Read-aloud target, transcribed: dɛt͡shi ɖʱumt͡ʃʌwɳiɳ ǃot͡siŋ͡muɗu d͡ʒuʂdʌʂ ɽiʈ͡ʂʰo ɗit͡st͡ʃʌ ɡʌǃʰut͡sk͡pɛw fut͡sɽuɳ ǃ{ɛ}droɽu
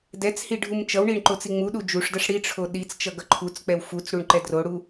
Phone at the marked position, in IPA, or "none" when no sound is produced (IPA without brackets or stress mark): ɛ